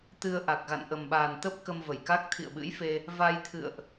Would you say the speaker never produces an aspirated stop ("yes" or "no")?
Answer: no